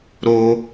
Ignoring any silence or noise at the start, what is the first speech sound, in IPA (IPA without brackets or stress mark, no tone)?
ɾ